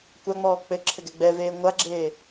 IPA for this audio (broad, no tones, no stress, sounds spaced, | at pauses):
kʷ a ŋ͡m ɔː k͡p ɘ ǁʰ ɘ ɡ ɛ ɡ͡b ɛ v eː ŋʷ a ɡ͡ǁ eː